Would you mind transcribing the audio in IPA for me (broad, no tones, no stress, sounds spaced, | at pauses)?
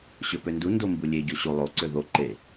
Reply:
ɕ ø p ø n d u n d o m b u lʲ e ɟ o ɕ u lˠ o ǀ ø ð o ǃ e